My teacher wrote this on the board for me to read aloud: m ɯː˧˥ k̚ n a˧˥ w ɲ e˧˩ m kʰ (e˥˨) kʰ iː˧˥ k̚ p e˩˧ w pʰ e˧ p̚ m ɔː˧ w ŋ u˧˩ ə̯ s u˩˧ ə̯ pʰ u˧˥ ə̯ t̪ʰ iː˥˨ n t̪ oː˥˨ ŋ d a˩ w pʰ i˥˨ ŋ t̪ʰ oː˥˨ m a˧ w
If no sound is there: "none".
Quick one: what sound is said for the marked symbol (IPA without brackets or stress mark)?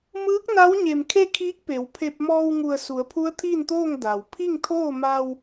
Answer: e˥˨